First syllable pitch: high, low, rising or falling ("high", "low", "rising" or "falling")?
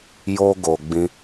high